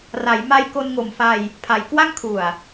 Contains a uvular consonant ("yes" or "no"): no